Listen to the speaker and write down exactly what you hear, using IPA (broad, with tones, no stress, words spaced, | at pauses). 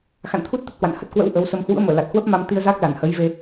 xa̰˧˨nt̪ʰu˦˥t̚ t̪ə˦˥t̚hwa̰˧˨n hə˦˥t̚kwə̰˧˥w ʔə˨˦wsə˧m hwṵ˧˥ə̯məː˧˩ la˨˩t̚hwə˦˥p̚ma˧mt̪i˧ə̯ za˦˥k̚ la˧˩nhə˨˦jve˧